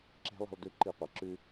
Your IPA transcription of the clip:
ǁ e̤˦˥ lˠ ɛ̤˧ lˠ d ʉ˨˥ ǃ i˧˩˧ qʷ e˩ ǁ ʉ˧

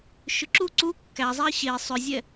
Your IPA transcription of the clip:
ʃ ʏ ǁ u ǀ u kː æ zˤ ɛ ɕ e sˤ ʏ zʲ ɛ

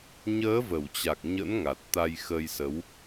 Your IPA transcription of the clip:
ɲ əː˨˦ v ə˧˩ w t͡ɕ a˨˩ k̚ ɲ ə̰˧˥ n ŋ a˨˩ t̚ t̪ a˧ j x əː˧ j s ə˨˦ w

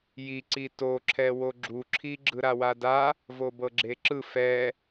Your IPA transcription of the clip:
j i ǀ i t o ǁʰ ɛ w o ɡ͡ǁ u ǁʰ i ɡ͡ǁ ɯ ɾ a w a d a | v o b ɤ ɡ͡ǁ e ǁ ɯ f ɛ

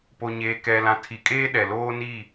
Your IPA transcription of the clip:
p o˨ ɲ eː˨ k ɛ˨ l ã˨ tʰ i˨ kʼ eː˦ ɗ ɛ˨ l oː˦ n i˦˨

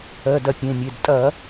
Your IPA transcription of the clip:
ɜ˩˧˩ d ɐ˧˩˧ pʲ ẽ˩˧˩ mʲ e˩˧˩ d tʼ ɐ˧˩˧

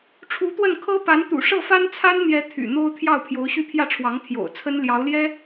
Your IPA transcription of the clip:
ʈ͡ʂʰ u˧˥ t̪ w ə˥˩ n kʰ ɤ˥ p a˧˥ n t̪ ṵ˨˩ ʂ ɤ˥˩ f a˥ n t͡sʰ a˥ n n̪ j ɛ˧˥ t̪ʰ y̰˨˩ n̪ o˥ ʊ̯ t̪ʰ j ɑ˥˩ ʊ̯ pʰ j o˧˥ ʊ̯ ɕ y˥˧ pʰ j ä˥˩ ʈ͡ʂʰ w ɑ˧˥ ŋ t̪ʰ j o̰˨˩ ʊ̯ t͡sʰ ə˥ n l j ɑ˧˥ ʊ̯ l j ɛ˥

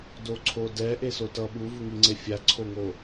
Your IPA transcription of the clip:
d o ǀʰ o d ɛ ʔ e s o t ʌ ɓ u v u ŋ i ŋ͡ǀ e fʲ a ǀʰ o ŋ o

